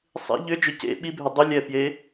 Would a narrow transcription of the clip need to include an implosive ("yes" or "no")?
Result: yes